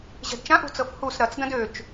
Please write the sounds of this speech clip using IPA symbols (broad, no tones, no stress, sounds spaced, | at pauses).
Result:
ʑ ɛ̤ d t͡ʃ ã ʔ ṳ t͡s ɤ f h u s ɾ ɐ t͡s d ɐ̃ d ø t͡ʃ